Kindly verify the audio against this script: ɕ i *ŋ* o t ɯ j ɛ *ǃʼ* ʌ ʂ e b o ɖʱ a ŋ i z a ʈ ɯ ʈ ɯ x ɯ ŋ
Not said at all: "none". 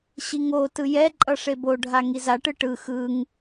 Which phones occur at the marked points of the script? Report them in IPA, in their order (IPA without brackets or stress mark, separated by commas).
ŋ, ǃʼ